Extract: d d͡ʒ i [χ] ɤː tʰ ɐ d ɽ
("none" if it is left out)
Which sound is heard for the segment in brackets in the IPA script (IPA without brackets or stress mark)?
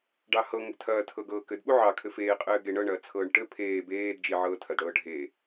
ʕ